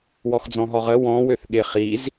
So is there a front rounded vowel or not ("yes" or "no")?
yes